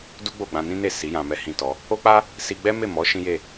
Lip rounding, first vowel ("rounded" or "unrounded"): rounded